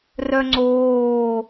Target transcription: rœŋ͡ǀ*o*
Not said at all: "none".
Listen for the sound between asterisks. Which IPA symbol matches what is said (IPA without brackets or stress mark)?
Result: oː